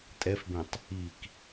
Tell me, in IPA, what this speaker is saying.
tʼ ɛ f b ẽ tˤ | i k

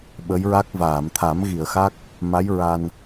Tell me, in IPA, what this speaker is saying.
ɓ ə˧˥ j ɹ a˦˥ k̚ v aː˨˩˨ m t̪ʰ a˨˩˦ m ɣ i˨˩˨ ə̯ x a˦˥ k̚ | m a˧˥ j ɹ a˧ n

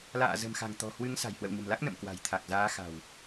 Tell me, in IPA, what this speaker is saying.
l a̰ː˧˨ z ə̤˨˩ m x a̤˨˩ ŋ t̪ ɔ̤˨˩ h w ɨ˨˦ ŋ s a̤˨˩ j h w ə̰˧˨ w ɲ ə̤˨˩ m l a˦˥ k̚ n ə̰˧˨ m k w a̤˨˩ j t̪ʰ a˨˩ k̚ z aː˨˦ x a̤˨˩ w

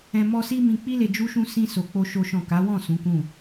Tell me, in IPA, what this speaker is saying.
ɛ̃˧ m ɔ˦ s i˦ m ĩ˧ k͡p i˦ l e˧ d͡ʒ u˦ ʃ ũ˦ s ĩ˦ s o˧ k͡p o˦ ʃ o˦ ʃ ɔ̃˦˨ k a˨˦ w ɔ̃˦˨ s ũ˨˦ k ũ˦˨

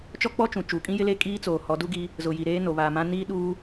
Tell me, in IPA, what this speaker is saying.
t͡ʃ ɔ˦ k͡p ɔ˦ t͡ʃ ũ˨ t͡ʃ uː˨ kʼ ĩ˦ j ɪ˦ l e˦ kʼ iː˦ t͡s oː˨ h ɔ˨˦ d u˦ ɡ i˦ | z ʊ˨ j i˨ ɾ eː˦ n o˨ β aː˨ m ã˦ n iː˦ ɗ uː˦

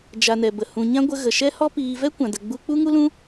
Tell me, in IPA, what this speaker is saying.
d͡ʒ a˨ n ɛ˨ b ə˨ h ũ˨ ɲ ã˦ ɡʷ ə˧ ɣ ə˨ ʃ ɛ˦ h ɔ˦ p iː˧ v ɛ˦ kʷ ã˨ d ə˨ ɡ͡b u˧ k͡p u˦ ŋ u˦ l ũ˦

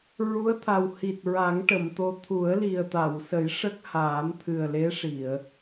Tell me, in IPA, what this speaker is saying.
ɹ u˧˥ ə̯ t̪ʰ a˨˩ w h i˨˩ t̚ ɹ a˨˩˦ ŋ ʈ ə˨˩˨ m t̪ o˧˥ t̪ʰ u˨˩˦ ə̯ l i˨˩ ə̯ t̪ a˨˩˨ w s ə˨˩˦ j ʂ ə˦˥ k̚ h aː˨˩˦ m t̪ʰ ɨ˨˩ ə̯ l e˧˥ ʂ i˨˩˨ ə̯

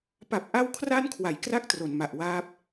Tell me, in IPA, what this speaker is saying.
p a˨˩ p̚ ʔ a˧ w kʰ r a˧ n kʰ w a˩˦ j k r a˥˩ k̚ t r o˩˦ n m a˨˩ ʔ w aː˦˥ p̚

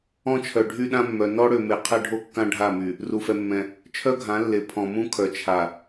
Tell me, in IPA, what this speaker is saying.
ɔ̃˦ t͡ʃʰ œ˨ ɖʱ y˦ ɗ ã˦ mː œ˨ n ɔ˦ ɽ ø˨ m e˨ qʰ ɛ˦ ɖʱ o˦ kː ã˦ ɖʱ a˦˨ m y˨ | r u˨ f ɛ˨ mː ɛ̃˨ | t͡ʃʰ œ˦ ɡʱ ã˨˦ lː e˨ pʰ ɔ̃˨ m ũ˦ kʰ œ˨ t͡ʃʰ a˨

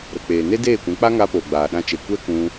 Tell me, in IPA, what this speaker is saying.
ɾ ə˨ k͡p eː˨ n e˦ d eː˦˨ kʷ ɛ̃˨˦ k͡p a˦ ŋ a˧ p oː˨ ɡ͡b aː˨ ɗ ã˧ t͡ʃ e˨ kʷ ɛ˦ k ũ˧

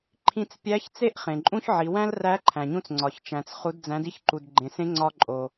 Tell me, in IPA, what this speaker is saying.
ǃʰ ĩ˧ t͡s pʲ æ˧˥ ç t͡s e˧˥ ʔ χ ẽ˩ ǃʼ ũ˧ ç ʕ i˩˧ w æ̃˥ l r æ˧˥ ǃʰ æ̃˩ ɲ ũ˧ t͡s ŋ͡ǀ ɒ˩ ç t͡ʃ æ̃˩ t͡s χ u˩˧ d d͡z æ̃˩˧ d i˥ ç ǃ u˩ d ɡ͡ǃ ẽ˩ s ẽ˧˥ ŋ͡ǀ ɒ˧ ǃʼ o˩

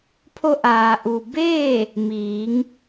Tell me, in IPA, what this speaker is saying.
pʰ o˧ ʔ aː˩ ʔ u˩ b eː˥˨ | m iː˩˧ ŋ

